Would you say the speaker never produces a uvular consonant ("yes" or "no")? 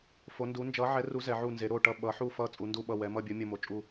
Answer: yes